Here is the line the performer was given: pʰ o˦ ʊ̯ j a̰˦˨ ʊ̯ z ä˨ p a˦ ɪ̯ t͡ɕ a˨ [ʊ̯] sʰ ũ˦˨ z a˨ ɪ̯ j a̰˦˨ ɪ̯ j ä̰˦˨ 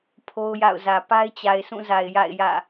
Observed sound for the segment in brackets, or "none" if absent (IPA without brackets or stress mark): ɪ̯